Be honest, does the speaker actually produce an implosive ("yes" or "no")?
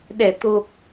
yes